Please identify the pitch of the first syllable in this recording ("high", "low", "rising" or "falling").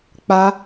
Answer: high